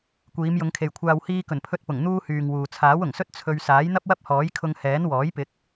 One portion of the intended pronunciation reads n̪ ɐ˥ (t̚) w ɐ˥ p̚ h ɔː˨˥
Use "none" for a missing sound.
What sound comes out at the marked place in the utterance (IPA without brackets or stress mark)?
p̚